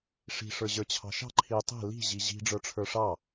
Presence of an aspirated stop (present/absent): present